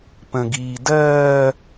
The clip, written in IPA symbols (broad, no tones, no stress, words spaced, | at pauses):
pə̃ɡiː dɜː